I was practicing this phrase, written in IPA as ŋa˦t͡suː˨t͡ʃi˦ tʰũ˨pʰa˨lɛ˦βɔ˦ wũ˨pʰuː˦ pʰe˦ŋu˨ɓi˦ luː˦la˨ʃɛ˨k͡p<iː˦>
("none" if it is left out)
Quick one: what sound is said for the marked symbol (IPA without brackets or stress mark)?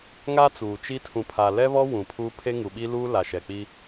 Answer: i˦